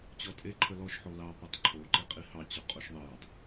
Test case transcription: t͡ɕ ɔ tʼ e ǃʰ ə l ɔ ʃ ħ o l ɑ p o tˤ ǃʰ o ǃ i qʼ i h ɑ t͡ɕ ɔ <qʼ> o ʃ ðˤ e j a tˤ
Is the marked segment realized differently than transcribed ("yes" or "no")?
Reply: no